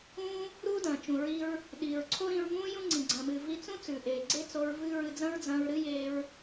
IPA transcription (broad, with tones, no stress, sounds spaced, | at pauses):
ũː˥ | ɾ uː˥ d ɐ̃ː˩ t͡ʃ ũ˩ ɹ i˧ ɹ | ɗ iː˩ ɹ ǀʰ o˥ ɾ ĩ˧ ɹ ŋ ũː˥ j ũ˥ ŋ͡ǀ ĩ˩ ɡ͡ǀ ɐ̃ː˩ m ɨː˩ v i˧ t͡s ũ˥ t͡s ʉ˩ ʔ eː˩ ɡ͡ǀ e˥ t͡s o˧ ɹ v ɨː˥ ɹ ɨ˧ d͡z ɐ̃˥ ɹ d͡z ɐ̃ː˧ ɹ ɾ ɨ˥ j eː˧ ɹ